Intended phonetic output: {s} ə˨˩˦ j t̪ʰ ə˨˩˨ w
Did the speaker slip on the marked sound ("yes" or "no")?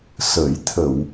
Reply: no